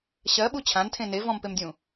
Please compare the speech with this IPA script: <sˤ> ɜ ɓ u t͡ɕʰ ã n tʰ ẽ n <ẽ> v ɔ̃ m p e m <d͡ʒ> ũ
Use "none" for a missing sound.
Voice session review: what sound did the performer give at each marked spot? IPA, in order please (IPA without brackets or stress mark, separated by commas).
ɕ, e, dʲ